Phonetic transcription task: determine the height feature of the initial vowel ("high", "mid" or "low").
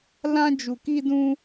low